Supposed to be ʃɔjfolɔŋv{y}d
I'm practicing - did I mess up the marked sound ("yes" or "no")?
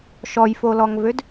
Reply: yes